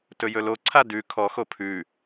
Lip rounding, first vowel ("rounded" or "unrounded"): rounded